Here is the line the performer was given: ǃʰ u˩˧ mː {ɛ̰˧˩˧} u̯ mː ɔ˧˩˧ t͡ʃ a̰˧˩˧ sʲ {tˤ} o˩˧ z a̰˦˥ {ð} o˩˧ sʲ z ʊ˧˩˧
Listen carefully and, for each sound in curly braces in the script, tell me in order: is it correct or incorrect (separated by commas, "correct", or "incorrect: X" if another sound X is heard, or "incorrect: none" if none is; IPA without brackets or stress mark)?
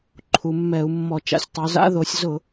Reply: incorrect: ɛ˧˩˧, correct, correct